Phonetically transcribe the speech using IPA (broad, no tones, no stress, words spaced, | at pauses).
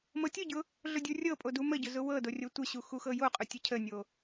mɤtʲʊɟʊ | ɮʊdʲurʲɤpʼo duməɟʊ zʊwɤdo rʲotʷəɕu xuxɤjoqʼʊ tʲəcʰənʲo